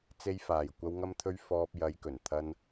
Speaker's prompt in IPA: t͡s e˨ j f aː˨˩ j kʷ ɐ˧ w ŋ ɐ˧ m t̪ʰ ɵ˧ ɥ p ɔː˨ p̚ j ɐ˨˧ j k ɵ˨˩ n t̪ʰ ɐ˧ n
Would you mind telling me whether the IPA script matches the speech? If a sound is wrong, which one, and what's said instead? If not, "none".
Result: p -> f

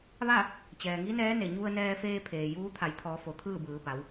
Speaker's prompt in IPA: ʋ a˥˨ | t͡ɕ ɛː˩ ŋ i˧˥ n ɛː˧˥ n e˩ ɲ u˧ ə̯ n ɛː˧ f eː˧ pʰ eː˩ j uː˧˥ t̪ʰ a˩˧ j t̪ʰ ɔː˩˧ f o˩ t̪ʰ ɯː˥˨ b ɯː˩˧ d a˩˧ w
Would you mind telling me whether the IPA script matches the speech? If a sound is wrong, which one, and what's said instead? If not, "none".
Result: d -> b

